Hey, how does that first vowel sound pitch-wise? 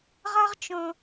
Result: high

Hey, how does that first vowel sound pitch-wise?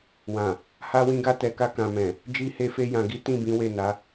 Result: low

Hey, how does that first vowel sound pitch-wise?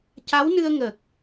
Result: rising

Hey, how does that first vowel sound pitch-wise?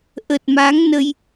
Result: low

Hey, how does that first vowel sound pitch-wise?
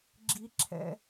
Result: high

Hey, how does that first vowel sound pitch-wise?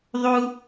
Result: high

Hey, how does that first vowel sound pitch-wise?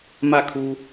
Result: falling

